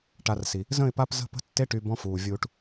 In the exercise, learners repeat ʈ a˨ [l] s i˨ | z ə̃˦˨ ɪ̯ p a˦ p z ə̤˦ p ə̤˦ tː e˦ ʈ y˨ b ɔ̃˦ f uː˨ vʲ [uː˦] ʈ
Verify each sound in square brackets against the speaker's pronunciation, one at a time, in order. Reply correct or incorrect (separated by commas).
incorrect, correct